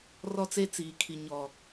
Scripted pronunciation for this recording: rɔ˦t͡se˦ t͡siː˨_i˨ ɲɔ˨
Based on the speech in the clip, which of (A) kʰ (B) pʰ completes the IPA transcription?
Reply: A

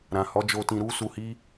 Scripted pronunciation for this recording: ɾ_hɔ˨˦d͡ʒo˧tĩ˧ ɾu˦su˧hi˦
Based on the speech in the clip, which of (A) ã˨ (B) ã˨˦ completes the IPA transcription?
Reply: A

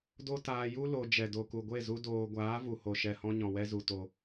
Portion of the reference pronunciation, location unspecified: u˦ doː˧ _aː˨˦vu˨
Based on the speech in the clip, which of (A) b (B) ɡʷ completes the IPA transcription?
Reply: B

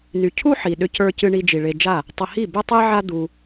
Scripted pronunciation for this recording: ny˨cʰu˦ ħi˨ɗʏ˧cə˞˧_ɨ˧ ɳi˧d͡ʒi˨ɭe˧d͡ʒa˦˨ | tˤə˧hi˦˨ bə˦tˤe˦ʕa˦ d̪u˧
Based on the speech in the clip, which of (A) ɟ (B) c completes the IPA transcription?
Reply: B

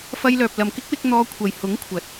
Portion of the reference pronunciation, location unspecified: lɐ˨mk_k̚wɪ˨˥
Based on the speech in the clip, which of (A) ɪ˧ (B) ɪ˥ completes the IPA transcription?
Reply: B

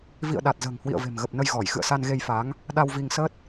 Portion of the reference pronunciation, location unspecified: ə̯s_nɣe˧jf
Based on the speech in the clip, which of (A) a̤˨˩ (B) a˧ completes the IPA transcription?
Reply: B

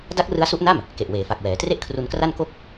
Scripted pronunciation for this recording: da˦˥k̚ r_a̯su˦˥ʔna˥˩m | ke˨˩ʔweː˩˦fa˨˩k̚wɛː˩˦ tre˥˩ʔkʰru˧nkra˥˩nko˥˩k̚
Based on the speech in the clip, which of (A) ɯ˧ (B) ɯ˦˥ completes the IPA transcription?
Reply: B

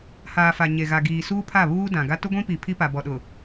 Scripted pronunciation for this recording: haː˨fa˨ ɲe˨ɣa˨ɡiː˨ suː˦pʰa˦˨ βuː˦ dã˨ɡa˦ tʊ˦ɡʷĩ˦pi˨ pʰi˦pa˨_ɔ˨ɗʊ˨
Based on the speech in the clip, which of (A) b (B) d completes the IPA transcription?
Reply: A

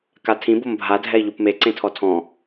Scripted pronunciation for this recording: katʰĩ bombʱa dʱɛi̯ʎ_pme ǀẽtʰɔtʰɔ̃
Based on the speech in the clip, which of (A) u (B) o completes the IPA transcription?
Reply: A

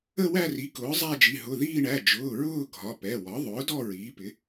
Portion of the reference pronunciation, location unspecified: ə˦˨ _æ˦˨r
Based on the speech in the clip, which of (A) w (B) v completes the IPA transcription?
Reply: A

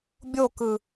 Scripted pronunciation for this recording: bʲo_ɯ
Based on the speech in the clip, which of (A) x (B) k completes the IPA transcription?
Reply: B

